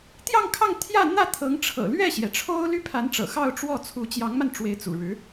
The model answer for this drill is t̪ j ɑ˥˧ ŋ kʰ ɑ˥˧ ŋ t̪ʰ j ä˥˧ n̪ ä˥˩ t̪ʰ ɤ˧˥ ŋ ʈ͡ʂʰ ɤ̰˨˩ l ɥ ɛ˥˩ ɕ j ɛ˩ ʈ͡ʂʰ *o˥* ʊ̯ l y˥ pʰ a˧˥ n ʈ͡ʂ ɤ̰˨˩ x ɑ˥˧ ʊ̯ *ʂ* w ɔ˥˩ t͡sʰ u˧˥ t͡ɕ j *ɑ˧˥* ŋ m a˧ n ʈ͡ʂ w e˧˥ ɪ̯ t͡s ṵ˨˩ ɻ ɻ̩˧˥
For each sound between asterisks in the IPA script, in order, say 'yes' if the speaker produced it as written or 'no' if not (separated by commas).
yes, no, yes